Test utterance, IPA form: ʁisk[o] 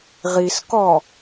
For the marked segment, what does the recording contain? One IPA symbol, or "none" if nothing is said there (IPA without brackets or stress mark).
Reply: ɔ